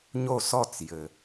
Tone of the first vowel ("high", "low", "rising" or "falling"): falling